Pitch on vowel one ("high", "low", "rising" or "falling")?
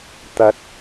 high